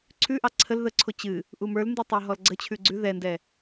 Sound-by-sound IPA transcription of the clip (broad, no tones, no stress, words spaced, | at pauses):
ǀʰʉʔɑ ǀʰəl ðəǀʰo t͡ɕɨ | ʔumə˞lndɨ tˤaɦɔlɡ͡ǀət͡ɕʰʉ ɡ͡ǀʉ ðɛndɛ